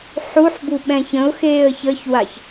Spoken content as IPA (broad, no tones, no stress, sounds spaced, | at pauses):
ħ u ħ b u ɓ ɛ̃ ç ə̃ ʊ̯ x eː ə̯ ç ə ç w a ç